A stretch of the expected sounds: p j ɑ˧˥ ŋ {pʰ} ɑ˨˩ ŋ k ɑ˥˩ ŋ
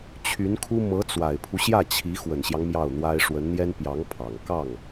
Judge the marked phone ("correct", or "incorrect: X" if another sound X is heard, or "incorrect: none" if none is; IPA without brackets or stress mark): correct